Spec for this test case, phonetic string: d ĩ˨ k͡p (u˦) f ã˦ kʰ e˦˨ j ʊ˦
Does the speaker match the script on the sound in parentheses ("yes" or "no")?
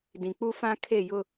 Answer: yes